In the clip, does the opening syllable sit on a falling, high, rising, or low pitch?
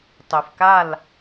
low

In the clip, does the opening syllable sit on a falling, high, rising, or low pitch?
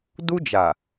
high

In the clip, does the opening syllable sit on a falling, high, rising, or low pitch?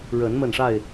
rising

